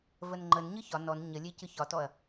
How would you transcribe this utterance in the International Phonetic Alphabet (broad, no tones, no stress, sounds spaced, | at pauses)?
v ə n ŋ͡ǃ ə n ɲ ɯ ç ɒ n ɔ n ɲ ə lʲ e c ɯ ç ɒ t ɔ ɐ̯